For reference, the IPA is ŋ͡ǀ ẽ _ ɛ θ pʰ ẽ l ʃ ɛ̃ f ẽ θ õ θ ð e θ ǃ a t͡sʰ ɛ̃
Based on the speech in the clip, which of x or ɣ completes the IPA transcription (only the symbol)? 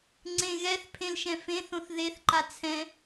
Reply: ɣ